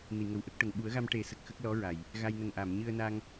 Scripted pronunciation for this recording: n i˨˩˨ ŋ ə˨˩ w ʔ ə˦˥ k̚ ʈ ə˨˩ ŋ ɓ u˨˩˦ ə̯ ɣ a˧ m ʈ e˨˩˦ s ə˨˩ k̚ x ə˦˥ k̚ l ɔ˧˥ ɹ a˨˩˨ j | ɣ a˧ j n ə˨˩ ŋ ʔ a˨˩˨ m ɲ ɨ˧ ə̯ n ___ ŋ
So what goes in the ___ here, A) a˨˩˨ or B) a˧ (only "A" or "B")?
B